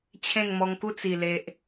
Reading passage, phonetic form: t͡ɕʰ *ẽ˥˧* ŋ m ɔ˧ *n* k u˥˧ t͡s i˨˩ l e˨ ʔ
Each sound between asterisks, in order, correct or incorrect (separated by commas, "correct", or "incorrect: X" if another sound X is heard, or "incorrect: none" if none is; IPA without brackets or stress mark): correct, incorrect: ŋ